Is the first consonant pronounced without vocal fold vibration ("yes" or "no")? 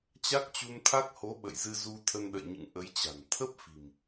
yes